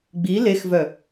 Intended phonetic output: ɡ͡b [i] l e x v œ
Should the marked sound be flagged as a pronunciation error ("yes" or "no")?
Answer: no